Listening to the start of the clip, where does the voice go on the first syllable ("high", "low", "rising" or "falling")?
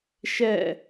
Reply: falling